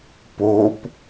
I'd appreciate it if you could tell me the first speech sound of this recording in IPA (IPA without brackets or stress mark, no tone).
p